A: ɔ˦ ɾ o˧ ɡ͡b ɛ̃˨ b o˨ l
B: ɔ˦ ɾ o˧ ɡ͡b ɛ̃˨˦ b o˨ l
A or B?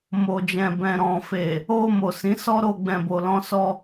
A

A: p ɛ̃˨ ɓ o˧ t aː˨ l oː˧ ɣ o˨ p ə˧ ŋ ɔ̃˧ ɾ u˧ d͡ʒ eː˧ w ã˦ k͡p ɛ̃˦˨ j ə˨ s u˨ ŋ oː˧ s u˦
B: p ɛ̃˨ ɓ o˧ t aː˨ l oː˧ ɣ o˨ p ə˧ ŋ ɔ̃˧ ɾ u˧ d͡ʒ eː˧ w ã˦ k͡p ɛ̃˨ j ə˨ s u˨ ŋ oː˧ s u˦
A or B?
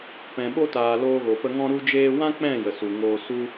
A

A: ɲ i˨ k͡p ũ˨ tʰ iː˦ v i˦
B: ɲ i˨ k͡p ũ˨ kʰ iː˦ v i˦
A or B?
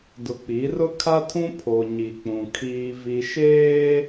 B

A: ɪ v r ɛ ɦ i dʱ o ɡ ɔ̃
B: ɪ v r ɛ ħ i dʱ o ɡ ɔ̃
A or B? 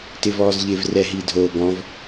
A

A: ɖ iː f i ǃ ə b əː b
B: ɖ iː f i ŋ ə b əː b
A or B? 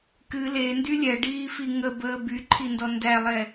B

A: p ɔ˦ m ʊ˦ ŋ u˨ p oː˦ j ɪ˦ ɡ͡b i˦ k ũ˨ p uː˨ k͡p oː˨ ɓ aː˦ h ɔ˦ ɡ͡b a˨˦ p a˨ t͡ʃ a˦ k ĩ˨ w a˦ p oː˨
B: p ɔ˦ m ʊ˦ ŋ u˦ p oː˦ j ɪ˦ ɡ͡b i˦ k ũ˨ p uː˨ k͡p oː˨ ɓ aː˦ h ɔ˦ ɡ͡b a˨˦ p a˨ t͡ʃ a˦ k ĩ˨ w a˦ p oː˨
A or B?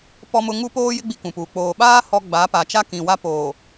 B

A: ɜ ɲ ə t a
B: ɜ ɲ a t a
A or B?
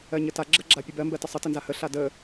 A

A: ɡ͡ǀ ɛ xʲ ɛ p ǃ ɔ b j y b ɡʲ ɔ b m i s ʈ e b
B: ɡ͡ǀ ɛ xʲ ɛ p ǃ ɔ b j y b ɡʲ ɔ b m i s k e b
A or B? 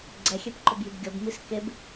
B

